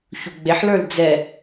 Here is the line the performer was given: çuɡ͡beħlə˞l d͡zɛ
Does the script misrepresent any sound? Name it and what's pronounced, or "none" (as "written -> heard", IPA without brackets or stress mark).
none